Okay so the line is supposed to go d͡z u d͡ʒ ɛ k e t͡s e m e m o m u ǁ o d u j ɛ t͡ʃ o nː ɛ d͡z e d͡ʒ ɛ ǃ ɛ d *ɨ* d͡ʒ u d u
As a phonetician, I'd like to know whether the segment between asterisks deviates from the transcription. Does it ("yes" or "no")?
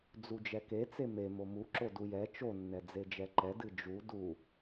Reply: no